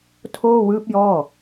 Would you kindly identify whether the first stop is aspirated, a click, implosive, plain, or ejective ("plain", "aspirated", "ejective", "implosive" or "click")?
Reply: aspirated